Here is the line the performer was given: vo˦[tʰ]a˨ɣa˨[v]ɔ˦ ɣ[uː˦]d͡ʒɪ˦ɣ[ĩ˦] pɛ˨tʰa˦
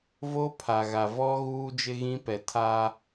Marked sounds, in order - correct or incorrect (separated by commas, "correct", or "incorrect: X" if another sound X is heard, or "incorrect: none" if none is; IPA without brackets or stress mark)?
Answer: incorrect: pʰ, correct, correct, correct